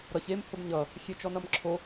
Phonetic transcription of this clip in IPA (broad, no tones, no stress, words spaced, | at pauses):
ɾʌç em hʊbɲʌ | xʲet͡ʃɔnʌmǁʰo